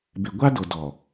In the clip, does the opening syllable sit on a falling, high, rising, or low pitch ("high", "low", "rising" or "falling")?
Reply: low